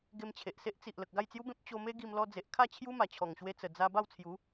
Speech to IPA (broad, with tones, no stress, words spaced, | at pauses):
ɡe˧mt͡ɕʰe˨ʔse˦ʔ t͡si˨ʔ lə˨k̚ɡa˥˧jt͡sju˦bẽ˦p̚ t͡ɕo˧me˦ ɡi˧mlɔ˧d͡ze˨ʔkʰa˥˧ t͡ɕʰju˦ma˨˩t͡ɕʰɔ˨˩ŋɕwe˧ t͡sə˨˩d͡za˧ ba˥˧wt͡sʰju˨˦